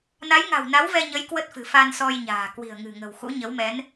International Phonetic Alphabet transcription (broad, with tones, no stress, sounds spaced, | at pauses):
n a˨˦ j ŋ a̤˨˩ w n a˨˦ w v ɛ˧ ɲ ə˨˦ j k w ə˦˥ t̚ f ɨ̤˨˩ f a˧ n s ɔ˧ j ɲ a̤ː˨˩ k w i̤˨˩ ə̯ ŋ ɨ̤˨˩ ŋ ə̤˨˩ w x ṵ˧˥ ɲ ə˨˦ w m ɛ˨˦ n